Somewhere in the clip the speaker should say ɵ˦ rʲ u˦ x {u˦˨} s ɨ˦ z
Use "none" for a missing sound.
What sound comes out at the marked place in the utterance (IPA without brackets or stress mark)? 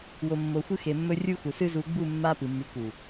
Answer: u˨